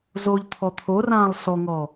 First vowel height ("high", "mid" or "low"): mid